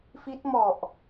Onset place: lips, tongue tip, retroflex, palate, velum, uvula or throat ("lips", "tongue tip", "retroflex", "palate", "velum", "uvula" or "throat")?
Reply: lips